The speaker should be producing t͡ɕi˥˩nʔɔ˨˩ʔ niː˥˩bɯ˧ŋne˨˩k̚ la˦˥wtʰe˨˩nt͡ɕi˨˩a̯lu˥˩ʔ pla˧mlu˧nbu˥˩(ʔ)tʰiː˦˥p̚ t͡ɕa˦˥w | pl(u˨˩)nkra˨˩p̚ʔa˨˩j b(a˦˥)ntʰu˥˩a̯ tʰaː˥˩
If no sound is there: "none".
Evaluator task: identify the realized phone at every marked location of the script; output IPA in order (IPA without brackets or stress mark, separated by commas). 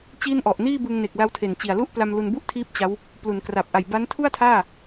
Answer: ʔ, u˩˦, a˦˥